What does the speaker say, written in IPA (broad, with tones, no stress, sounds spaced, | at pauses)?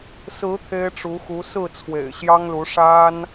s ɹ̩˧˥ t̪ʰ e˥ ɪ̯ ʈ͡ʂ u˧˥ x u˧˥ s ɹ̩˥˩ t͡sʰ w ḛ˨˩ ɪ̯ ɕ j ɑ˥ ŋ l u˧˥ ʂ a˥ n